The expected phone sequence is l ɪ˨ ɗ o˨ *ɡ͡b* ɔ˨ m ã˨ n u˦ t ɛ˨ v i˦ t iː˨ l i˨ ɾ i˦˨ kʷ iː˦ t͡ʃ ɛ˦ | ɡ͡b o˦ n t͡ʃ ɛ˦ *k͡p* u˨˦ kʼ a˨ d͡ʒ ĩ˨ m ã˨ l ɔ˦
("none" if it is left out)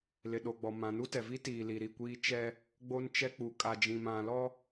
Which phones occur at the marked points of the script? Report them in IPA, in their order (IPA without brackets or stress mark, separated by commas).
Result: ɡ͡b, k͡p